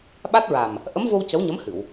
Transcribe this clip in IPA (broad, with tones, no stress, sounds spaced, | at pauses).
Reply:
ɓ a˦˥ t̚ ɹ a˨˩ m | ʔ ə˧˥ m v o˧ w c ə˧˥ w ɲ ə˧˥ m h ɨ˨˩˨ w